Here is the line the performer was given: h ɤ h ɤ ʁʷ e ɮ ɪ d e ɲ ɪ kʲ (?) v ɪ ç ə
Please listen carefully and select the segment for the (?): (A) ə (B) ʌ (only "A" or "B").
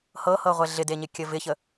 A